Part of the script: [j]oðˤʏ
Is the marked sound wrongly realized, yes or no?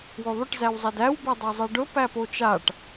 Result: yes